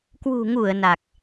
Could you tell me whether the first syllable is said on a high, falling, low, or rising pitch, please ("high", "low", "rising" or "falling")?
low